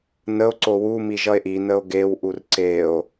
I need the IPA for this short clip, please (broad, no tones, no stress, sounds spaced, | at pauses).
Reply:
n ə o̯ ǀ o w u m i ʒ ʌ e̯ ʔ i n ə o̯ ɡ e w ʔ u r ǀ e o̯